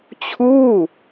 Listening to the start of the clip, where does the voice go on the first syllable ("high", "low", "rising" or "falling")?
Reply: falling